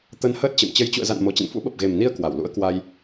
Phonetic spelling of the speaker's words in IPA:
t̪ ə˧ n h əː˦˥ t̚ t͡ɕ ə̰˧˨ m t͡ɕ ə˨˦ j t͡ɕ ṵ˧˨ ə̯ z a̰˧˨ n m o˨˩ t͡ɕ ə̰˧˨ n f ṵ˧˥ ɓ ə˨˩ p̚ ɣ e˨˩ m n i˧ ə̯ k w a˧˩ w l ṵ˧˥ ə̯ k w a˧ j

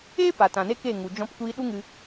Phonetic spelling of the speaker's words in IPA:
eː˦ p a˨ t ã˨ n e˦ k e˦˨ ŋ u˨ d͡ʒ ɔ̃˧ p kʷ iː˧ ɗ u˦ ŋ ɨ˧

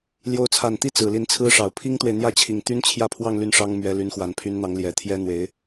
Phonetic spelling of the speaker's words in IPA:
l j o˧˥ ʊ̯ t͡sʰ a˨˩ n t̪ i˥˩ t͡s ɹ̩˨˩ l i˧˥ n t͡sʰ ɹ̩˥ ʂ ɑ˨˩ ʊ̯ pʰ i˥ ŋ t̪ w e˨ ɪ̯ n̪ j ä˥˩ t͡ɕʰ i˨˩ ŋ t̪ y˥ n t͡ɕʰ j ä˥˧ pʰ w ɑ˥˧ ŋ l y˥˩ n ʂ ɑ˥ ŋ m ɥ ɛ˧˥ l y˧˥ n x w a˨˩ n pʰ y˧˥ n n̪ ɑ˧˥ ŋ l j ɛ˨˩ t̪ʰ j ɛ˥ n̪ w e˧˥ ɪ̯

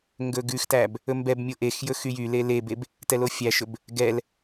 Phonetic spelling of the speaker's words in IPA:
ŋ ɡ ɵ ɡ ʉ x t æ b | ɵ m b ɛ b mʲ o ʔ e x j ɵ x y j y l e l e b e b | t ɛ l o fʲ æ ʃ ɵ b | ɡ ɛ l

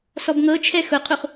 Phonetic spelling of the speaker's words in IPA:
s ɔ b ŋ ɤ t͡ʃʰ ɛ x ʊ qʰ u χ

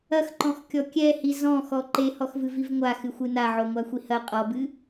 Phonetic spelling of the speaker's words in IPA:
ɐ x ǃ ɔ̃ x kʲ ɔ kʲ ɛ h i z ɔ̃ x ɔ ǃ e h ɔ x v ɨ v i v ŋʷ a x ɨ xʷ ɨ n a ʕ o ŋʷ a xʷ i h ɐ qʼ ɔ b ɨ

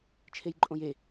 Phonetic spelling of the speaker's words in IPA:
t͡ʃʰ e j ǃʼ õ j e

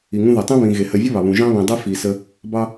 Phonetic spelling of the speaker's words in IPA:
i˩ ŋ ũ˦ ð e˩ tˤ ĩ˥ β ĩ˨ ɣ e˩ h ɜ˨ vʲ ʌ˥ β ɑ˩ β ũ˩ ʒ ɑ̃˦ β ĩ˩ dˤ e˦ f i˩ s ə˨ | b ɑ˦

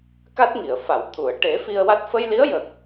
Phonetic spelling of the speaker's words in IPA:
k a˦˥ t̚ ŋ i˨˩˨ ə̯ f a˨˩˨ w t̪ʰ u˨˩˨ ə̯ ʈ e˨˩˦ f i˧ ə̯ w a˦˥ t̚ f ə˧ j l i˧˥ ə̯ j ə˨˩ k̚

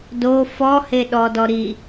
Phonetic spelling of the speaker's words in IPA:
d o f ɔ h e ɗ ɔ d ɔ ɾ i

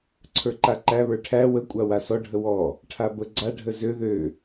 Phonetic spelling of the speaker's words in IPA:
ǀʰ ə˞ ǃ a ǃ æ β ə˞ ʈʰ æ w ə kʷʼ a w a s ɔ ɖʱ ə w ɔ | ʈʰ a b ə ɡ͡ǀ a ɖʱ ə z ø ð ø

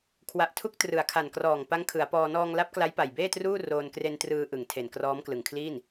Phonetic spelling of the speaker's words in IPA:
kʰ w a˨˩ ʔ tʰ u˦˥ k̚ t r ɯ˩˦ a̯ kʰ a˨˩ n k r ɔː˨˩ ŋ p a˦˥ ŋ kʰ ɯ˩˦ a̯ p ɔː˧ n ɔː˧ ŋ l a˦˥ p̚ k l a˦˥ j p a˨˩ j b eː˥˩ t r uː˥˩ r oː˧ n k r e˧ n t r ɯː˧ ʔ ɯ˨˩ ŋ tʰ e˨˩ n k r ɔː˦˥ m k l ɯ˨˩ ŋ kʰ l iː˥˩ n

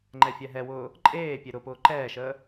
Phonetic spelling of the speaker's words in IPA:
ŋ͡ǃ ɛ fʲ ɛ ɦ ɛ w ʊː | ǃʼ eː pʲ e ɾ ʊ p ʊː ǃ ɛː ʃ əː

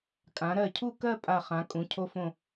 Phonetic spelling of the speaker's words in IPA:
kʼ ã˩˧ ɾ ɜ˧˩ cʰ u˥˧ k ɜ˥˧ pʼ a˧˩ χ ã˩˧ kʼ ũ˩˧ cʰ o˧ f õ˧˩

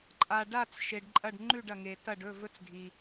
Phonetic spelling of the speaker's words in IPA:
ǃʼ a˩ ɖ a˧˩ t͡s ʃ e˩ ɖ ǃʼ ɐ˧˩ ɖ ŋ͡ǃ ʉ˧˩ ɖ ɐ˩ ŋ e˩ t ɐ˧˩ ɖ ɵ˥˩ v ɵ˧˥ t͡s dʱ i˩

